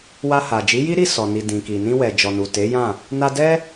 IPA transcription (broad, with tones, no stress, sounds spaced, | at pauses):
w a˧ h a˨ d͡ʒ i˨˦ j i˦ ɾ i˦˨ s ɔ˨ n i˨ d ĩ˨ k i˨ n ĩ˧ w ɛ˨ d͡ʒ ɔ˨ n u˨ t e˨˦ j ã˦˨ | n a˧ d ɛ˦